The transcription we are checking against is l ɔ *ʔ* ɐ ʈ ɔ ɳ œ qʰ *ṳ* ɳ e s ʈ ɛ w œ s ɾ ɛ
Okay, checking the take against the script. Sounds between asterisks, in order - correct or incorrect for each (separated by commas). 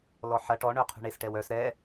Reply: incorrect, correct